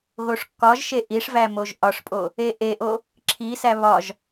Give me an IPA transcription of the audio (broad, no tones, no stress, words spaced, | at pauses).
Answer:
ɣoʂkːɒʒʃe ʔiʂvæ moʒʔɒʂpʼo | eʔeʔo | ǁʰisæ βɒʒ